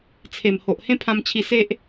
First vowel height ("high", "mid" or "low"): mid